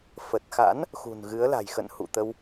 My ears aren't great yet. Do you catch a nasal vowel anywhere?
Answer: no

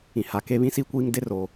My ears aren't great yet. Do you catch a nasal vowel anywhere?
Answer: yes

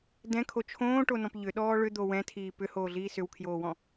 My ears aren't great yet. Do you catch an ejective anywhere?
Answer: no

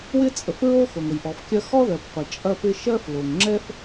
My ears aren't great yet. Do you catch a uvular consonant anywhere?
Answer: yes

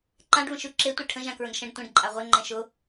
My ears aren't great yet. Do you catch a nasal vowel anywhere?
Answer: yes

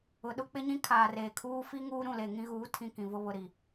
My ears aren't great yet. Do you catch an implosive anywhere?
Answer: yes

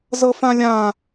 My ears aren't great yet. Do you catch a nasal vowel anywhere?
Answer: yes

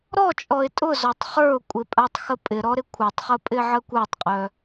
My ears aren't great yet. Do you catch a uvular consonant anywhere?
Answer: yes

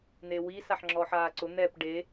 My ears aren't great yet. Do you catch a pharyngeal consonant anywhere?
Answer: yes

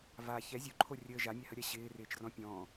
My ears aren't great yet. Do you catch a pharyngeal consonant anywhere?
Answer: no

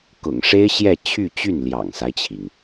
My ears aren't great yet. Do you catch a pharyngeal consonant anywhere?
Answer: no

